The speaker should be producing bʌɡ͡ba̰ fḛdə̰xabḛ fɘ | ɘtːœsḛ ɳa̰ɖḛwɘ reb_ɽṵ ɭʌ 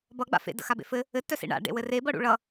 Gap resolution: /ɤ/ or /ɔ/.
ɤ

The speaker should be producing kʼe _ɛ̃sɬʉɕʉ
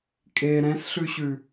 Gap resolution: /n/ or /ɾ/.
ɾ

